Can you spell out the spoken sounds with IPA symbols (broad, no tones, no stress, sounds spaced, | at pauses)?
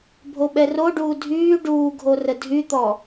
bʱ o ɓ ɛ r o ɖ uː dʱ yː ɖ uː ɡʱ o r ə dʱ y t̪ ɔ